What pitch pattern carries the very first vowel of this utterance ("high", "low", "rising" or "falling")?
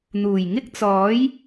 low